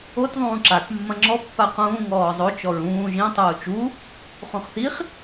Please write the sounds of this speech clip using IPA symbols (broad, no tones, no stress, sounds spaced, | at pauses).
o t ðˤ ũː ǁ a k mː ɐ̃ ŋ͡ǁ ɔ pː a q ũː ŋ ɔː zˤ o t͡ʃ ɔ ɹ ũː ʒ ĩ tˤ uː t͡ʃ u | χ ũ χ θ i χ